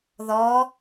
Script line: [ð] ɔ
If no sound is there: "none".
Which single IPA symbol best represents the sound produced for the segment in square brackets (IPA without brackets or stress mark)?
ð